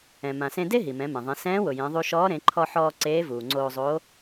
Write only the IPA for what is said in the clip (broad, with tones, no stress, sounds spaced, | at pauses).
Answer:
ɛ̃˩ m ã˩ s ẽ˧ d e˥ ɦ i˩ m ɛ̃˩˧ m ẽ˩ ðˤ ẽ˩˧ s ɛ̃ː˧˥ w ʊ˩ j ẽ˩˧ ðˤ u˧ ʃ ɔː˧˥ ɾ ẽ˩˧ ǃʰ ɔ˧ ħ ɔː˧ ǀ eː˧˥ v uː˩ ŋ͡ǀ oː˧ zˤ o˧˥